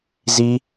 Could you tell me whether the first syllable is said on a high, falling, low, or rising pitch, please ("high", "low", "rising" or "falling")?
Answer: high